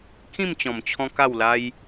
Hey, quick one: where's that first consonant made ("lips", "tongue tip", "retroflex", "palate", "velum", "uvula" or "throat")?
velum